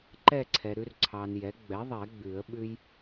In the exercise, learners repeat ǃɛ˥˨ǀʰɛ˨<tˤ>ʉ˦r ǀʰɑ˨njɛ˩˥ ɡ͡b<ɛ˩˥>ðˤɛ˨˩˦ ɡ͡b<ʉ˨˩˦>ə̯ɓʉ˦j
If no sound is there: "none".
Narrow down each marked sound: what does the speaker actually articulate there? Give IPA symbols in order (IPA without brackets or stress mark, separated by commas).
ɾ, ɛ˩˥, ʉ˨˩˦